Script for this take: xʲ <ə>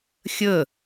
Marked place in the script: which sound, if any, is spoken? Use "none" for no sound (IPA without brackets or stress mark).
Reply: ə